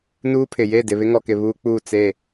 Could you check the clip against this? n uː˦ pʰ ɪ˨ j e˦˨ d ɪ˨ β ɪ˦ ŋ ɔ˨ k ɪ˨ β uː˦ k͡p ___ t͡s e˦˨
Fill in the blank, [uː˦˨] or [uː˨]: uː˦˨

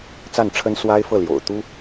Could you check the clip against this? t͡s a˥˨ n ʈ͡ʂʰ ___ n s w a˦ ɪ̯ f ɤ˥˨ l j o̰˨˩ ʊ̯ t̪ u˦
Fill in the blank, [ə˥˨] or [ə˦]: ə˦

